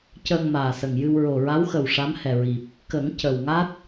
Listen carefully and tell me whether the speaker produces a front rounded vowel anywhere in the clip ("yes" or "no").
no